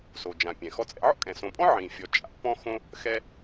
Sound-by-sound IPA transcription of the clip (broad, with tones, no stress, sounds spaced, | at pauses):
s o˩ d͡ʒ ã˩ pʲ ɛ̃˩ x ɔ˦ t͡sʼ ɛ̰˦ ʕ ɔ̰˥ kʼ ɛ̃˩ s õ˨ pʼ ɔ̃˥ ʕ ĩ˩ fʲ ɔ˨ t͡ʃʼ a̰˦ p ɔ̃˥ x õ˥ | x ɛ˦